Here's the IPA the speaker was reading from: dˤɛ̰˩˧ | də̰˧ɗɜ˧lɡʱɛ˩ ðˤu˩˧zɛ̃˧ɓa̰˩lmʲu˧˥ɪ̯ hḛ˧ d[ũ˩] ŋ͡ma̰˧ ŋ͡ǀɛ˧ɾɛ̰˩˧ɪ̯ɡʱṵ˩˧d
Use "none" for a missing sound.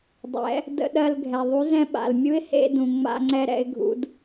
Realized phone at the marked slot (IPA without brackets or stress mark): ũ˩